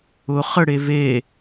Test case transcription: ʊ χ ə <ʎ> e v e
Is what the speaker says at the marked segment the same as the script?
no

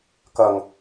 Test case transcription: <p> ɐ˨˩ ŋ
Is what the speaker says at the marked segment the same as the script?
no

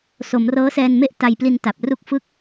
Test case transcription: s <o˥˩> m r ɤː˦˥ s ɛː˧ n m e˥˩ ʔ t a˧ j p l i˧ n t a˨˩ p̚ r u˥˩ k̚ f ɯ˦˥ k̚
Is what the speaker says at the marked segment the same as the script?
no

